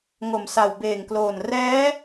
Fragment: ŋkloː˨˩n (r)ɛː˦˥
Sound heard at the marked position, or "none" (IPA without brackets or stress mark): r